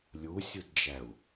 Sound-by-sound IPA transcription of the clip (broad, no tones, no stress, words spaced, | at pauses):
lʲusʲudd͡ʒæu̯